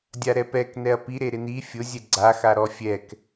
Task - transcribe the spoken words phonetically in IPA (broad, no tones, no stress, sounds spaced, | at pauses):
dʲ a ɾ ɛ p ɛ k n ɛ ɐ̯ p i ɾ e ɾ ɪ n i fʲ ʊ zʲ ɛ ɡ͡ǀ a x a ɾ ɔ fʲ ɛ k